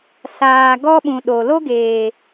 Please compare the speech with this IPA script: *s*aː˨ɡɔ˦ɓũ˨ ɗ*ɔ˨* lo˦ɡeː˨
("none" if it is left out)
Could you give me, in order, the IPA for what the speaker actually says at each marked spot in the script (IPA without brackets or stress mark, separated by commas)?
s, o˨